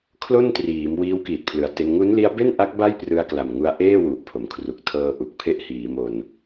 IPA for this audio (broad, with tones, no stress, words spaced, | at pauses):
kʰlo˥˩n triː˩˦m wiː˦˥wkiː˨˩t̚pʰlɯ˨˩a̯te˧n ŋu˦˥nli˦˥a̯be˥˩nʔa˦˥k̚ ba˥˩j prɯ˧a̯kla˨˩mŋu˧a̯ ʔeː˥˩wu˨˩ʔpʰo˩˦m kʰru˨˩k̚tʰɤː˧ʔu˨˩k̚pʰe˦˥ʔ hiː˩˦ mo˧n